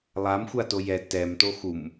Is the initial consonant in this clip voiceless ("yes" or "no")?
no